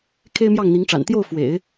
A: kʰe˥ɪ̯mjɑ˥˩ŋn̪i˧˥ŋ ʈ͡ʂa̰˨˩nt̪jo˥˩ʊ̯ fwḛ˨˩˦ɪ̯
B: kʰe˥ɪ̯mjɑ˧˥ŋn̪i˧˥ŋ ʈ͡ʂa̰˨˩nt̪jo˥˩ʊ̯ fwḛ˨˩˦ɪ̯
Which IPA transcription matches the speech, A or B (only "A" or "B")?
A